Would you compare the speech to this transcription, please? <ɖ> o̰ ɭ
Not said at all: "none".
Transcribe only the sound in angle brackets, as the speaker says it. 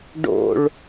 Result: ɖ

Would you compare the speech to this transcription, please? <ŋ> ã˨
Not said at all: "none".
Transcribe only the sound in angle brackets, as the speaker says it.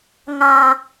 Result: ŋ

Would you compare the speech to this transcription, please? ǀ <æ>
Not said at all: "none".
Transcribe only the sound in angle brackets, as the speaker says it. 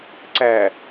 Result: æ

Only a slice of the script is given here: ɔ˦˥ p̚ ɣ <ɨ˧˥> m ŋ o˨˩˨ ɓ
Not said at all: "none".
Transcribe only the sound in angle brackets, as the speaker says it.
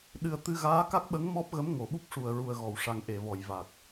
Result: ə˧˥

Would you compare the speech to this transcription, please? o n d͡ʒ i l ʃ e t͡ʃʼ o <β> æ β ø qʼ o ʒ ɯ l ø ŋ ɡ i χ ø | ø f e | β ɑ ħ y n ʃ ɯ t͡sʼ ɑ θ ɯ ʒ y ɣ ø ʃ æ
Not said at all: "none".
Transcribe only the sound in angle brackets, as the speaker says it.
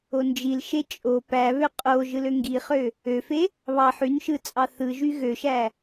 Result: p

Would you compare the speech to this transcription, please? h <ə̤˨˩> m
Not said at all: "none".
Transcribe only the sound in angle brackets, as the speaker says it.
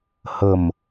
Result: ə̤˨˩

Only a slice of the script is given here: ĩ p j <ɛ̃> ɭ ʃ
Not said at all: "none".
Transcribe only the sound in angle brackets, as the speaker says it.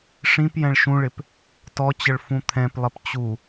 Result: ɛ̃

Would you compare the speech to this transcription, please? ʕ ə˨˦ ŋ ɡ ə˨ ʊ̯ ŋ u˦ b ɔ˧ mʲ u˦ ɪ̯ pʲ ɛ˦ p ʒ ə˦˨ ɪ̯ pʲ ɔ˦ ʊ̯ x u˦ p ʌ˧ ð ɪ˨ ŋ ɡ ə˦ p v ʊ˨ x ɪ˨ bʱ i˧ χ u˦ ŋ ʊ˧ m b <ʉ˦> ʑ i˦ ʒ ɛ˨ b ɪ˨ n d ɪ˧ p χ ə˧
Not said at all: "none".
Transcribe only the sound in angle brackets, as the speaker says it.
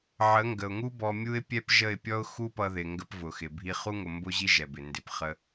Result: ʊ˦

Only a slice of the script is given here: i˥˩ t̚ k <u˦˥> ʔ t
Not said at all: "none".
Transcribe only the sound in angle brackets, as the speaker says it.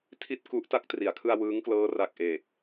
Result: u˦˥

